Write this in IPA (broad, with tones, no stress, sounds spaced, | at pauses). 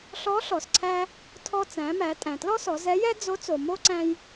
ɬ ɔ˧˥ ɬ ɔ˩ s ǀʰ æ˧ | tʰ ɔ˧ t͡s æ̃˩˧ m æ˩˧ tʼ æ̃˩ t l ɔ˥ s ɔ˩˧ z ɛ˧˥ j ɛ˥ d͡z o˧˥ t͡s o˩ m o˥ ǀ æ̃˧ j